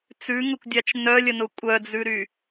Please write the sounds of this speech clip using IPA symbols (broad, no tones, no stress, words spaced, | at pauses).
t͡sʉŋʊkʷdʲat͡ʃ nœlʲənʊ kʷʼœd͡zʉɾy